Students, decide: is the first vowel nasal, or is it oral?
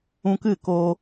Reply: nasal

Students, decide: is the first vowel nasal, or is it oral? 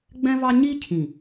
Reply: nasal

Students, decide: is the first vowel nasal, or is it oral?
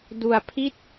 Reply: oral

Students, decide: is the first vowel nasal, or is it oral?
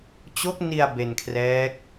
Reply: oral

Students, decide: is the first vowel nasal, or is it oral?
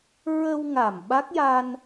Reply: oral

